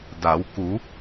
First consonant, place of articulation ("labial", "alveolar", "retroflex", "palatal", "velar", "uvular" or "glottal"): alveolar